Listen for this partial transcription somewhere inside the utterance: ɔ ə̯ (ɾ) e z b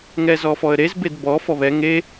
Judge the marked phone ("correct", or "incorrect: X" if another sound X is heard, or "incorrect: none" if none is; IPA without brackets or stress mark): correct